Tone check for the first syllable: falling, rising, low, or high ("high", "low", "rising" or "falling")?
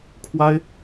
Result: high